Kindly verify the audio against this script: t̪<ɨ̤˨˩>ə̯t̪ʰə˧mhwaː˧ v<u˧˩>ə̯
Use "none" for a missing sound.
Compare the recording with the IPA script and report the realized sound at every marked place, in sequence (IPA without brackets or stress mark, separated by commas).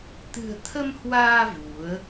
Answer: ɨ̤˨˩, u˨˦